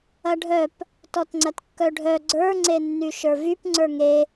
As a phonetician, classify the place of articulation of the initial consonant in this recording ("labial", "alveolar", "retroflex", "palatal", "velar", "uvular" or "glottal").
retroflex